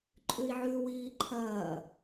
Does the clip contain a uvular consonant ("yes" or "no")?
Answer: no